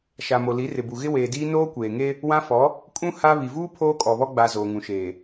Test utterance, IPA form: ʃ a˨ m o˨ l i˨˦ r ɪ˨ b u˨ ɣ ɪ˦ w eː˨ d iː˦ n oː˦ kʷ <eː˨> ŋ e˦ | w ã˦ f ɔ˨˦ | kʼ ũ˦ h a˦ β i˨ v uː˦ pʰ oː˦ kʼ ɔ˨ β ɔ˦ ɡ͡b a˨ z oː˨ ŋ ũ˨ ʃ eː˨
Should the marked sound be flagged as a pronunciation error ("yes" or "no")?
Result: no